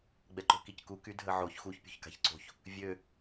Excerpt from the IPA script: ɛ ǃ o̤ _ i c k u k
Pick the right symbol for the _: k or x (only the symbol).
k